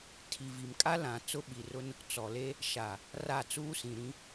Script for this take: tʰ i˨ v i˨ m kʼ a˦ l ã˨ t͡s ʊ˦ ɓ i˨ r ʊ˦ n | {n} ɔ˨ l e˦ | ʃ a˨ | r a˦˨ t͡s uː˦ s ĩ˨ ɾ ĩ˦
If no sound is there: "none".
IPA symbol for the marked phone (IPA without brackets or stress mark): t͡s